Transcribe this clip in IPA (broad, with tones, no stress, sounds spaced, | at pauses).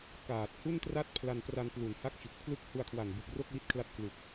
k aː˨˩ t̚ h u˥˩ n t r a˥˩ t̚ pʰ l a˧ n p r a˧ n p l u˩˦ n h a˦˥ k̚ t͡ɕ u˨˩ k̚ pʰ l ɯ˥˩ k̚ h u˧ a̯ kʰ w a˨˩ n b u˨˩ k̚ r o˥˩ k̚ w i˦˥ t̚ kʰ l a˦˥ t̚ k l u˨˩ k̚